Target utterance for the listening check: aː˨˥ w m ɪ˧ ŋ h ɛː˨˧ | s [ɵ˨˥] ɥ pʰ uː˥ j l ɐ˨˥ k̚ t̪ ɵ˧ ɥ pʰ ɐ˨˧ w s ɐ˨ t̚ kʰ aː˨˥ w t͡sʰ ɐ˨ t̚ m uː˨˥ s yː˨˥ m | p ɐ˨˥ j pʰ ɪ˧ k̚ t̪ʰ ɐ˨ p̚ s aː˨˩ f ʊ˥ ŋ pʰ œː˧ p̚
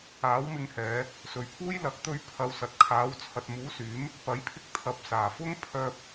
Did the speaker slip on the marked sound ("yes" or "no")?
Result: yes